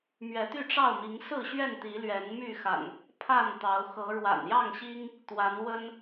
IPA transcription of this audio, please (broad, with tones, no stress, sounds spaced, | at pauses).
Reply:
m ɥ ɛ˨˦ t̪ y˥˨ ʈ͡ʂ ɑ˥˨ ʊ̯ m i˨˦ ŋ s ɹ̩˥˨ ɕ ɥ ɛ˥˨ n t̪ i˨˦ l ɥ ɛ˨˦ n m y˥˨ x a̰˨˩ n | pʰ a˥˨ n t̪ ɑ˨˦ ʊ̯ x ɤ˨˦ ɻ w a̰˨˩ n j ɑ˥˨ ŋ ɕ i˦ ŋ | t̪ w a˨˦ n w ə˦ n